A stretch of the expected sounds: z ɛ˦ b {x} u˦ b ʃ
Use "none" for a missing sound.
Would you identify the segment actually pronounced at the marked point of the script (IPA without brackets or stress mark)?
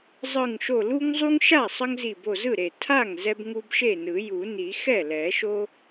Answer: ŋ